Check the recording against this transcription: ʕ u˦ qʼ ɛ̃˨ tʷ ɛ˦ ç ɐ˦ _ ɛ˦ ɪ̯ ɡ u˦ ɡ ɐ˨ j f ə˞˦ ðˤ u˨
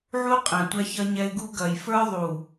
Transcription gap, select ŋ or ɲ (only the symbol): ɲ